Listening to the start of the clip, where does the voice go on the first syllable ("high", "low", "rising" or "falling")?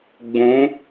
rising